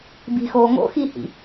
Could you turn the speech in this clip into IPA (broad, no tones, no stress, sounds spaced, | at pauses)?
b i̤ x oː ŋ o̰ x i h ḭ